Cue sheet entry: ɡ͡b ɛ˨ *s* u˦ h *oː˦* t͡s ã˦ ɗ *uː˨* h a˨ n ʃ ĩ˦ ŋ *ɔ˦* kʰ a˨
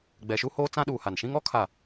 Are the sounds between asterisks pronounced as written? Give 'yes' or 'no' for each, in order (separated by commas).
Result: no, yes, yes, yes